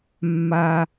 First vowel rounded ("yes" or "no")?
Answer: no